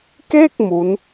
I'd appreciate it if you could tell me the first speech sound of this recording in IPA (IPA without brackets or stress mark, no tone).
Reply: k